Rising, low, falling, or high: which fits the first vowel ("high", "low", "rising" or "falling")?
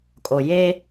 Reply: low